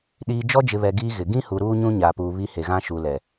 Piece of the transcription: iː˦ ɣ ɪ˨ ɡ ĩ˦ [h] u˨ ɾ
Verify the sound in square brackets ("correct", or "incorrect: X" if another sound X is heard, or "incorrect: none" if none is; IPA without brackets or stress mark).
correct